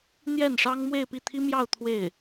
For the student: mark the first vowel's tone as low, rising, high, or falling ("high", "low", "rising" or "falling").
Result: falling